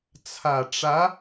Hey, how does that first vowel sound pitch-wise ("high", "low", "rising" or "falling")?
low